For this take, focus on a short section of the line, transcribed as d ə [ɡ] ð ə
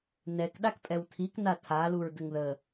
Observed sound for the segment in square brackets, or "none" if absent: ŋ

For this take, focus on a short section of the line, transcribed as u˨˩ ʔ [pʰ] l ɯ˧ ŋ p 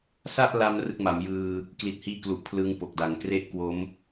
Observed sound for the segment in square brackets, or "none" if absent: pʰ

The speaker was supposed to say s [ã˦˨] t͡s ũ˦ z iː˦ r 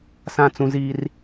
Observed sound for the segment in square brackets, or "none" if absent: ã˦˨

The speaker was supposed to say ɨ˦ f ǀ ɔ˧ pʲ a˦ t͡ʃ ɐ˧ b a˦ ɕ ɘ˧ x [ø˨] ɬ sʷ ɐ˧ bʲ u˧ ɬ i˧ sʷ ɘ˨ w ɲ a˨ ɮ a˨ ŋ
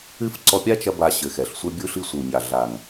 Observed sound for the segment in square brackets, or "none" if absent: ɛ˨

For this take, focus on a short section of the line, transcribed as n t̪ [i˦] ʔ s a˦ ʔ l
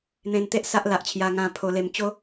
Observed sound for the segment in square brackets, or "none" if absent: e˦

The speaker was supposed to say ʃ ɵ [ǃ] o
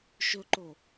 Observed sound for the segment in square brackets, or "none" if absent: ǃ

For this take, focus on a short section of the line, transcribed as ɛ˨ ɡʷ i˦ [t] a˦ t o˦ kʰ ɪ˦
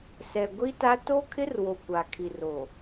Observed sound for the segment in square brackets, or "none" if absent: t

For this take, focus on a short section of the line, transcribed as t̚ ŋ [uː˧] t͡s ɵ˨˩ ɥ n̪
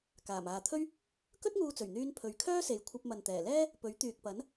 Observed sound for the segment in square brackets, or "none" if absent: uː˧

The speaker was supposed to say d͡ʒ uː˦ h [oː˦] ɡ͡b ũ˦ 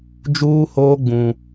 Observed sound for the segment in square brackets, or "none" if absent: oː˦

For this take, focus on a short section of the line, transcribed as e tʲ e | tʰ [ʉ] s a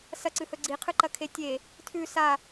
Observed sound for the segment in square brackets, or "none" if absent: ʉ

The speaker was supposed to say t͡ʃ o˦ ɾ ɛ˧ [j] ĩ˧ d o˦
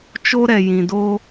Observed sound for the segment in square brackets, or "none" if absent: j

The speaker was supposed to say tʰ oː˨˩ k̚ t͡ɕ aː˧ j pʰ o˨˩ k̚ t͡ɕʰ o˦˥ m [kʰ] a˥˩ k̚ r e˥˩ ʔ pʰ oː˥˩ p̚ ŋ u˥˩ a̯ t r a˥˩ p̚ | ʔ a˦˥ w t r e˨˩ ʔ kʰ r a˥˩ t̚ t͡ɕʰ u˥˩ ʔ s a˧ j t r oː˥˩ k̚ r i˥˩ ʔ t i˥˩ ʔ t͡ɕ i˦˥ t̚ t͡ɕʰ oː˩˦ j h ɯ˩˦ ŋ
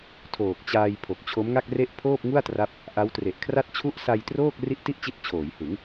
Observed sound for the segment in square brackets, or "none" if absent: ŋ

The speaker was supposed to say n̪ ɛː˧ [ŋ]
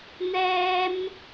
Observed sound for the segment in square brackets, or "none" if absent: m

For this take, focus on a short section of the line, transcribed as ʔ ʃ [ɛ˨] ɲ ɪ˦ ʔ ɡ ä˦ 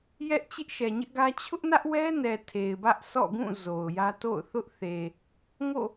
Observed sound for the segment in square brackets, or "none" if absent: ɛ˨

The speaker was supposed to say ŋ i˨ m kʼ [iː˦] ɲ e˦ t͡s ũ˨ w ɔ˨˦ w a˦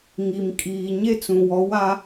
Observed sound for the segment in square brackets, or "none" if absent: iː˨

